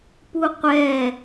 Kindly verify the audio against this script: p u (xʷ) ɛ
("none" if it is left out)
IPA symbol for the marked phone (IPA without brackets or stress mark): qʷ